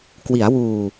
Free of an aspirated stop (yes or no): yes